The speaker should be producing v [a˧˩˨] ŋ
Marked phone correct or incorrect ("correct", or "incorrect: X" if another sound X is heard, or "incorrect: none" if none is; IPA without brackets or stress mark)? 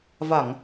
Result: correct